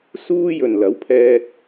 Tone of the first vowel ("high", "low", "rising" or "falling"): high